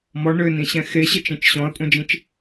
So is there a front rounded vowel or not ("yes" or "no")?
yes